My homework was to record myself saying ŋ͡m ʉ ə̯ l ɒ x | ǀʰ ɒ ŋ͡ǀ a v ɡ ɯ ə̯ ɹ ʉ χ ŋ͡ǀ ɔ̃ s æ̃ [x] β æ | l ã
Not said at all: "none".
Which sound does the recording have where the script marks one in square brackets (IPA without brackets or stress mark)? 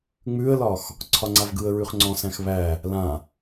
x